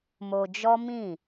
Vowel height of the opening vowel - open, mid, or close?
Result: mid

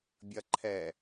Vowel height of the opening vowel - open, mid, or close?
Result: open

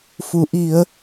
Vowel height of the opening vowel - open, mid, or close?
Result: close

